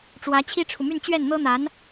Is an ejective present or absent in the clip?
absent